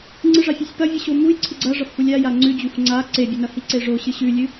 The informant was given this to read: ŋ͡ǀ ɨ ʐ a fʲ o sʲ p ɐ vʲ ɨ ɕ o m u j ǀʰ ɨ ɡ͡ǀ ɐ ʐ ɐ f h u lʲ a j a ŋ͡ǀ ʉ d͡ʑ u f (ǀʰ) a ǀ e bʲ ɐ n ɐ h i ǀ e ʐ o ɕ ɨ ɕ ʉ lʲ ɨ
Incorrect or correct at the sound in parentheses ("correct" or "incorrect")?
incorrect